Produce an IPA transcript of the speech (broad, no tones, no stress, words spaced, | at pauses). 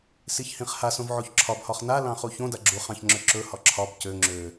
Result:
siçhĩχha sõvʕoçǁʰɒb hɒχna lɑ̃χuçõda ɡ͡ǁuχɑ̃çŋ͡ǁø ǁɵ hɒǁʰɒb cø ŋ͡ǁø